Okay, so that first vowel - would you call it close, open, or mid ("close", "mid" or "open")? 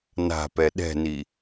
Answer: open